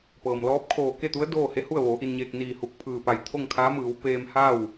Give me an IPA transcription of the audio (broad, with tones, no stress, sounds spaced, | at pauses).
p ɤː˩ m l ɔː˧˥ p̚ kʰ oː˧˩ k e˥˨ t̪ u˧˥ ə̯ d oː˥˨ h e˧˥ h u˥˨ ə̯ ʋ oː˩˧ ʔ i˧ n ɲ eː˧ k̚ n iː˧˩ h u˧˩ k̚ pʰ ɯː˧˩ p a˧˩ j t̪ʰ o˥˨ ŋ kʰ aː˧˥ m ɯː˩˧ w p eː˧ m h a˥˨ w